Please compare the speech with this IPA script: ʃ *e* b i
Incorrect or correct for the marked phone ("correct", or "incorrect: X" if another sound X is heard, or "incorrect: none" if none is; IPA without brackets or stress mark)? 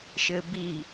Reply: incorrect: ɘ